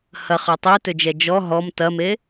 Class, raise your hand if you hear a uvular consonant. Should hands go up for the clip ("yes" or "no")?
yes